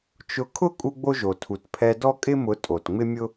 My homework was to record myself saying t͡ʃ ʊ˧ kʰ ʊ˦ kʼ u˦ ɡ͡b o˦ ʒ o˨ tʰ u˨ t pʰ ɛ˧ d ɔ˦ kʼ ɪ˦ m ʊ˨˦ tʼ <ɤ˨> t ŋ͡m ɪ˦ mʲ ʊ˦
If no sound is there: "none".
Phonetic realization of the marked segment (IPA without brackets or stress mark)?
o˨